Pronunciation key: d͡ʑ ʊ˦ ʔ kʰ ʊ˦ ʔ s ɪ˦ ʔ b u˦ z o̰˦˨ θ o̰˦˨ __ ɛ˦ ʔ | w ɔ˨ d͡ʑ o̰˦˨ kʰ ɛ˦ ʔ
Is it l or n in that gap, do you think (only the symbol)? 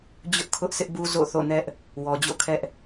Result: n